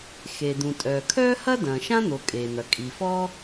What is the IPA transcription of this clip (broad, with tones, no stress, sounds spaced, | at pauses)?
x eː˩ d̪ ũ˩ tʼ œː˩ kʰ œː˥ h ɐ˥ d ɐ̃ː˩ ʃ ã˥ n̪ o˩ kʼ eː˩ n̪ ɐ˩ kʼ i˩ f ɔ˥